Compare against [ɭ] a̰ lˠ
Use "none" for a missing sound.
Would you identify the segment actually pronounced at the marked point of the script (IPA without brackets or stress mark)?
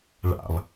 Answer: ɭ